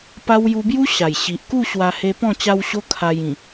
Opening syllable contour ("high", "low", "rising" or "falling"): high